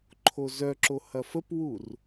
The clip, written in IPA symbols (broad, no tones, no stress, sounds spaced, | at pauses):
ǃʰ o z œ ǁ o h ɐ f ə p w u r